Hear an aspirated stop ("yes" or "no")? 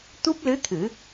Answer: yes